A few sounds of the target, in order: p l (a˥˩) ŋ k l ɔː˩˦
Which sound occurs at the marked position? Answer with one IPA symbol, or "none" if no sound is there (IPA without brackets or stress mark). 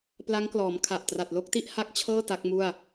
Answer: a˦˥